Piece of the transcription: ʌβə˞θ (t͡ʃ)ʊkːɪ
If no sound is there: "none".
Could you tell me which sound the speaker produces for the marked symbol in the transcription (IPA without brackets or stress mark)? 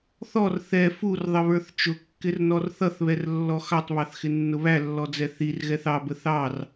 t͡ʃ